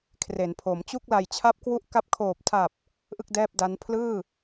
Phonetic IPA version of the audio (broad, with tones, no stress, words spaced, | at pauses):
kʰre˩˦npʰo˩˦mt͡ɕu˥˩k̚ la˨˩jt͡ɕʰa˦˥p̚kwu˦˥ʔka˦˥p̚ kʰoː˨˩p̚ tʰa˨˩p̚ | ʔɯ˥˩k̚dɛː˥˩p̚da˦˥n pʰlɯː˥˩